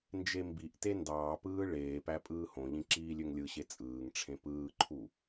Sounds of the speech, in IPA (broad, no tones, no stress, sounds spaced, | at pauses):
n d͡ʒ e m b i ʔ t e n d ɑː p ɯː ɭ eː p æ pʼ ɯː h õ ʎ ĩ ǁ iː lʲ ø ŋ lʲ ɯ ɕ e t͡sʼ ɯː ŋ ʈ͡ʂʰ ẽ p ɯː ǃʰ u